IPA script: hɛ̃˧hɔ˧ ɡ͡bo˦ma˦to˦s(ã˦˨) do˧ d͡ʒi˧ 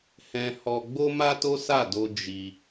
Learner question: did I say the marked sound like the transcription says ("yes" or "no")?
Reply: no